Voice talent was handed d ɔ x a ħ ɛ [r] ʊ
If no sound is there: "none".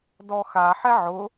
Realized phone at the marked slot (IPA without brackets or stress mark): ʕ